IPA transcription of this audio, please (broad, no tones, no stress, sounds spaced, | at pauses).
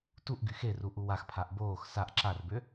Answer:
t u ʔ ɡ y x e r u ʔ u w a x pʰ a ʔ b oː x s a ʔ ǁ a r b ø